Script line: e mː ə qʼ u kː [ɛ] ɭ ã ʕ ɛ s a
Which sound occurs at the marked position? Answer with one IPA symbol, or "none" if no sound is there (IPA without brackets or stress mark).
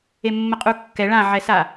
ɛ